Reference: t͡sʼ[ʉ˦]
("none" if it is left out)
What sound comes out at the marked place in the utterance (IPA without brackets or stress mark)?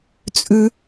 ʉ˦